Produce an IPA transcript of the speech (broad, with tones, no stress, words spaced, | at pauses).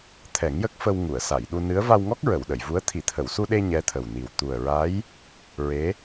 t̪ʰɛ˨˩˦ŋjə˦˥k̚fə˧w ŋu˨˩˨ə̯sa˨˩˨jɗu˧ nɨ˧˥ə̯ va˧wŋɔ˦˥k̚ ɹə˨˩˨w ɗə˨˩˨jvu˧˥ə̯ t̪ʰi˨˩˨t̪ʰə˨˩˨wsu˧ɗe˧ ɲɛ˧˥t̪ʰə˨˩wni˨˩w t̪u˨˩ə̯ɹa˧˥j | ɹe˧˥